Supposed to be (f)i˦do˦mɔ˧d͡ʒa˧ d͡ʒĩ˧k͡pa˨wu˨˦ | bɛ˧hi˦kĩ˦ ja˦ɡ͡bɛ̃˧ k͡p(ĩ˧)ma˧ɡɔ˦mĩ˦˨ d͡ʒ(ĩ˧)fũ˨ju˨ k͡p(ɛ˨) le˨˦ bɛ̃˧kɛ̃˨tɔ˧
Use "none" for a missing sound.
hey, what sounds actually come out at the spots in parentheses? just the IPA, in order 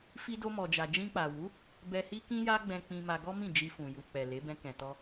f, ĩ˧, i˧, ɛ˨

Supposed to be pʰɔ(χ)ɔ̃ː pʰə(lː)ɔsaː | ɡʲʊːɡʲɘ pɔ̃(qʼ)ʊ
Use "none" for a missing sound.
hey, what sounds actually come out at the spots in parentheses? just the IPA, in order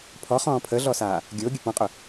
χ, ɮ, qʼ

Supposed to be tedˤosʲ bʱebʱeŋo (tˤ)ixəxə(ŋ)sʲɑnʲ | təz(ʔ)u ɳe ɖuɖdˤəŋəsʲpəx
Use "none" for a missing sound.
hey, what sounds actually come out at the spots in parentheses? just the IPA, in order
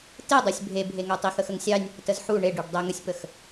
tˤ, ŋ, ħ

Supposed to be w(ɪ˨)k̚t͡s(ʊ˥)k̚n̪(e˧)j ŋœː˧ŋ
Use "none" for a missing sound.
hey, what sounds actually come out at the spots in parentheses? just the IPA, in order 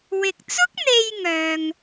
ɪ˨, ʊ˥, e˧

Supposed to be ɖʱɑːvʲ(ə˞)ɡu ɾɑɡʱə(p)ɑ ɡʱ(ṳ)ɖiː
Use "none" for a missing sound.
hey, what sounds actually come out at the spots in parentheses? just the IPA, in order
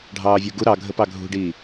ə˞, p, ṳ

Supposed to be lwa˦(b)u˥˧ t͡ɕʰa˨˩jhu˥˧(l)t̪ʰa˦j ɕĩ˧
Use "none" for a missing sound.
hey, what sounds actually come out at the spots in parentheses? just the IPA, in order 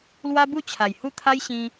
b, none

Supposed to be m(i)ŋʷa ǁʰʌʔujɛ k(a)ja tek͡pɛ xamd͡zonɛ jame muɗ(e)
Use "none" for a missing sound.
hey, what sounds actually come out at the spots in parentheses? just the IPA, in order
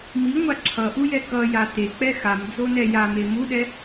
i, ʌ, ɛ

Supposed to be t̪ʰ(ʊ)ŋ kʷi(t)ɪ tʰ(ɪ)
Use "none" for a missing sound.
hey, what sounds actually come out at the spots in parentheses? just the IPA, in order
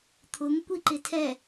ʊ, ǃ, ɛ

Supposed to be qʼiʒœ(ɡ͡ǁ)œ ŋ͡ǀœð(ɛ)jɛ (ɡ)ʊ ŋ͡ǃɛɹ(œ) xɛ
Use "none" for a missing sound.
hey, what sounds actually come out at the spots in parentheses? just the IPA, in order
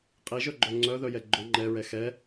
ɡ͡ǃ, œ, ɡ͡ǃ, ɛ

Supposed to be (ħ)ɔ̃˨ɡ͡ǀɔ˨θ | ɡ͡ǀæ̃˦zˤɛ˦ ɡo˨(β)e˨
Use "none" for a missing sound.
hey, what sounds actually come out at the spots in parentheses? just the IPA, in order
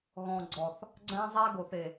ɣ, θ

